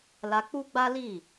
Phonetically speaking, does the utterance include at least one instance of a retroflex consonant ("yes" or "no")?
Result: no